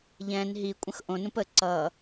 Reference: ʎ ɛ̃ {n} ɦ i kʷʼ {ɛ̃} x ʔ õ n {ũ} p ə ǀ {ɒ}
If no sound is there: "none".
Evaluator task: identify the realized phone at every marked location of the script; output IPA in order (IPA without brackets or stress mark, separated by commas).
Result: n, ə̃, ũ, ʌ